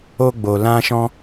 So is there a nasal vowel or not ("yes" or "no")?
yes